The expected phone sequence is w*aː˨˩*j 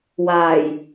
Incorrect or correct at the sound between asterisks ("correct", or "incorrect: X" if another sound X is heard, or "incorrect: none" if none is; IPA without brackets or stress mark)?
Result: correct